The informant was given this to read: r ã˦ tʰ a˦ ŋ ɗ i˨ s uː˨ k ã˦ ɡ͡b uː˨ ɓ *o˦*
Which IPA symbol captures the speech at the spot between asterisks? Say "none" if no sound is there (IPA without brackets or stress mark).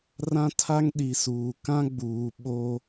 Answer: o˦